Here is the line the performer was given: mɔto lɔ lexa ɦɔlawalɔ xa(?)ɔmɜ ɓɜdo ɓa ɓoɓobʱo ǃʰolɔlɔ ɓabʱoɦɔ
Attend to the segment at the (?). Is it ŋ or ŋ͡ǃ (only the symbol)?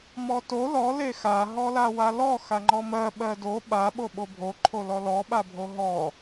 ŋ͡ǃ